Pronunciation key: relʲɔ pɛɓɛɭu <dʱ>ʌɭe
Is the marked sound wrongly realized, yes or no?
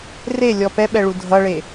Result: no